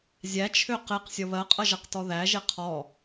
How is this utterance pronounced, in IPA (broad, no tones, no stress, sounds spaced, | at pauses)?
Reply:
zʲ æ t͡ʃʰ ø q e q sʲ ʌ β ɜ qʼ ʌ ʒ ʌ q t ɔ ð æ ʒ e qʰ ɔ